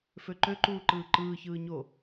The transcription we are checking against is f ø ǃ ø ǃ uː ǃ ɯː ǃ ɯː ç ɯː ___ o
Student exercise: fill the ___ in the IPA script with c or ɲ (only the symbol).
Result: ɲ